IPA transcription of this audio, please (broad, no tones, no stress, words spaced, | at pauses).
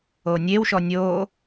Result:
onʲewʃɔ nʲoː